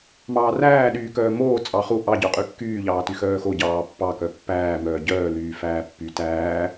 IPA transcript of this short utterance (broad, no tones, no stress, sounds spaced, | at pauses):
m ɑː r æː ɗ yː k œː m oː t͡sʼ ɑ χ u ʔ ɑ ɟ œ qʼ y kː yː ʎ ɑː t y x œː x o ɟ ɑː pː ɑ k œ pː æː m œː ɟ œː l yː f æː pː y t æː